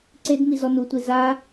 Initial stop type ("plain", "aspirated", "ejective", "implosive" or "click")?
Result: click